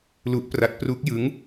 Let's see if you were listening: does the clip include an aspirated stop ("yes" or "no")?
no